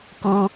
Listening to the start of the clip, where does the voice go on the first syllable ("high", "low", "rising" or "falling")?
low